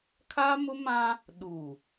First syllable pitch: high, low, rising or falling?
high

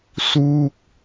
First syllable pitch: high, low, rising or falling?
falling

